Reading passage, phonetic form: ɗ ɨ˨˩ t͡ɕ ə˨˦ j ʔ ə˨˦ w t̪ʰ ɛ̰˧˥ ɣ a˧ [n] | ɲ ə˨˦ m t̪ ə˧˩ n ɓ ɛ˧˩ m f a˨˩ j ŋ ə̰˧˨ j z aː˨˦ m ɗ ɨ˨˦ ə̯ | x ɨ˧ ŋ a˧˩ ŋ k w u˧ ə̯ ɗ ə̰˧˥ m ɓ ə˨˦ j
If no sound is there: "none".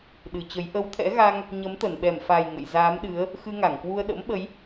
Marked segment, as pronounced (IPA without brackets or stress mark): ŋ